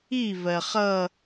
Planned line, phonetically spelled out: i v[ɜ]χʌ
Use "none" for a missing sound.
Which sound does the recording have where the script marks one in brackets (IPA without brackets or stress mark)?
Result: ɜ